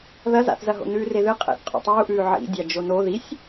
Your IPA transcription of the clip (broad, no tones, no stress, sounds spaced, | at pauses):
ð ɐ z a̰ θ z ɐ ɦ o̰ n ʉː r e ð ɨ qʼ ḛ θ qʼ ṵ tˤ uː ʔ ʉː ʕ ḭ dʲ a d͡ʒ o n o ð i sʲ